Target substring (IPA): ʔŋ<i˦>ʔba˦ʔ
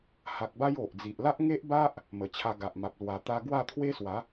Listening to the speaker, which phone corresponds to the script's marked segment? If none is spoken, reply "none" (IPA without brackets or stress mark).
e˦